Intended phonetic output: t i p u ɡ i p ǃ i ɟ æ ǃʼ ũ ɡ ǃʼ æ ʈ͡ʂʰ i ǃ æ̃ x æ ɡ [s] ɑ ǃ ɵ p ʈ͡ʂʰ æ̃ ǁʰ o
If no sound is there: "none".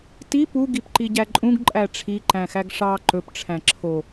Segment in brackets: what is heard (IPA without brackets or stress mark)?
ʂ